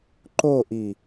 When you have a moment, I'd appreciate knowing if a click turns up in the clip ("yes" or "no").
yes